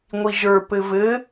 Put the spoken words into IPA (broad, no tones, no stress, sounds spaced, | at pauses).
ŋʷ i ʒ ə˞ p ɘ v ɘ